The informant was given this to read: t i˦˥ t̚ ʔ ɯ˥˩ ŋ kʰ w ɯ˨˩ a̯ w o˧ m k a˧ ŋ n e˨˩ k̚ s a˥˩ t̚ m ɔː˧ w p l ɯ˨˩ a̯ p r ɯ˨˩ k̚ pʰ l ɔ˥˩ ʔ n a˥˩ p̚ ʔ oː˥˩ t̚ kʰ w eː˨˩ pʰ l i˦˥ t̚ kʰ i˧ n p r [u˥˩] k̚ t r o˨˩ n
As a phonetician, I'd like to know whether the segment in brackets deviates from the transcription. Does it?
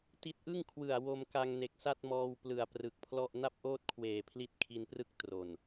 yes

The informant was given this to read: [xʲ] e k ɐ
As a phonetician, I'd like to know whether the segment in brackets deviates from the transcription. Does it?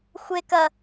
yes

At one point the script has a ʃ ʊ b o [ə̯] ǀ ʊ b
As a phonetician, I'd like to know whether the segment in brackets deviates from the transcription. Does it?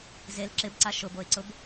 yes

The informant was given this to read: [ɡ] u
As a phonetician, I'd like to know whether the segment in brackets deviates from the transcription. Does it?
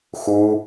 yes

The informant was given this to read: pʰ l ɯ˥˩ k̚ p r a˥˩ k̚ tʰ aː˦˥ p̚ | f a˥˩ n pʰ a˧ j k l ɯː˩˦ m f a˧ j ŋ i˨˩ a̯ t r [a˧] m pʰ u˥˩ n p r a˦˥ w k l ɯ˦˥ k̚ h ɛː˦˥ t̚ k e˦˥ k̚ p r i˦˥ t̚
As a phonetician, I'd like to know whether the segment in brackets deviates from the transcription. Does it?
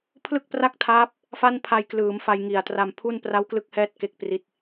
no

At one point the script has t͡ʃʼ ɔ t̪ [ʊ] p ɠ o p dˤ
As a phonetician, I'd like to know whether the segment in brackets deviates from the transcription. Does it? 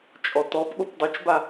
yes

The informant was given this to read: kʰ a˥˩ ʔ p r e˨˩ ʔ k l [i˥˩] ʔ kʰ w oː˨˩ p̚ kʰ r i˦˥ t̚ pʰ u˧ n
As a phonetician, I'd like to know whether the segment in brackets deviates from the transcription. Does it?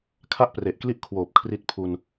no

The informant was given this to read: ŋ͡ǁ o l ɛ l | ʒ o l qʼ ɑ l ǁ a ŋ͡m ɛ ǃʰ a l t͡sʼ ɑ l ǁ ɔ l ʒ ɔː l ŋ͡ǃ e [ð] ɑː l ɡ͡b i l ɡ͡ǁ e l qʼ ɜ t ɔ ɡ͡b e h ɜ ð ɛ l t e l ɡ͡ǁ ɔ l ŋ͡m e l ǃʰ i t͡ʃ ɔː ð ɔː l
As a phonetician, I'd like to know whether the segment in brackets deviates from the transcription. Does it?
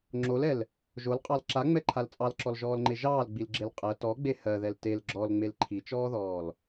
yes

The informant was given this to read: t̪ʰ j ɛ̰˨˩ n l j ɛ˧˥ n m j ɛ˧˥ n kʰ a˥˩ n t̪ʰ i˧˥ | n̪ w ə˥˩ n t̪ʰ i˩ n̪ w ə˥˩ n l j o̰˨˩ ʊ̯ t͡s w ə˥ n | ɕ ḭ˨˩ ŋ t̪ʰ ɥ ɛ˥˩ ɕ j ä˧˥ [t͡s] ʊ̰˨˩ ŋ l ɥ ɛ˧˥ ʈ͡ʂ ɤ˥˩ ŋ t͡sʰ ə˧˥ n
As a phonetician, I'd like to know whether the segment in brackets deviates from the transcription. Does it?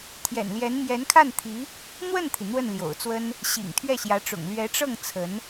yes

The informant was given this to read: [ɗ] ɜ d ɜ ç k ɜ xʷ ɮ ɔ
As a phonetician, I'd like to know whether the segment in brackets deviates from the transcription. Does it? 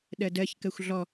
no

